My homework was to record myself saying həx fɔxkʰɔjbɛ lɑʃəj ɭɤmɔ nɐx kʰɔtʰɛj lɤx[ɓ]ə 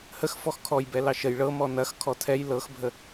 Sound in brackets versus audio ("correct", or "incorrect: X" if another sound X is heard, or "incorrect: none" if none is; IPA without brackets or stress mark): incorrect: bʱ